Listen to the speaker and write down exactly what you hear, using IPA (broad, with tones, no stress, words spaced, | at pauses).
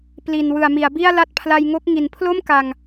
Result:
pli˨˩n wɯ˨˩a̯mi˩˦a̯bi˥˩a̯ la˥˩t̚pʰla˧jŋo˦˥k̚ ŋi˩˦npʰlo˥˩mka˨˩ŋ